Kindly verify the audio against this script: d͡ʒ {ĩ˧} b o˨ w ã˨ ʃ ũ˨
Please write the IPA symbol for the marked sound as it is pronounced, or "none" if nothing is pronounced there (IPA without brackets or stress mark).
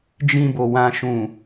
ĩ˧